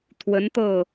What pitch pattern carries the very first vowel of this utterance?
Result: rising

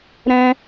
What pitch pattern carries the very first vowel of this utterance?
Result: high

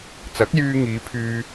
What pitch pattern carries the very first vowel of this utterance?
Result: rising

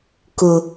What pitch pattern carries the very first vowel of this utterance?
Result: low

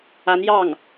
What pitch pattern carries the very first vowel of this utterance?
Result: rising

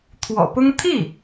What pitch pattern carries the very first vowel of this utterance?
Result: low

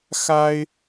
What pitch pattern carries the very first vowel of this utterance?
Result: high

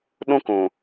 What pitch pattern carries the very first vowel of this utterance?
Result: high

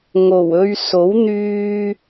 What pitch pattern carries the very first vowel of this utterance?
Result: low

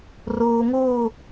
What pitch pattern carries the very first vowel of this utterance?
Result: low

